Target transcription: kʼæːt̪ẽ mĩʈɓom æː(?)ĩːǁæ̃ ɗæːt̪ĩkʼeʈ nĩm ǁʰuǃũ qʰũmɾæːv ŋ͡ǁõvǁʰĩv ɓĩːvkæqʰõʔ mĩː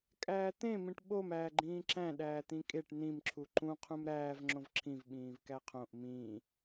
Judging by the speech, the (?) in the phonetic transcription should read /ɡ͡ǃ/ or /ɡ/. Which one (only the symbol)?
ɡ͡ǃ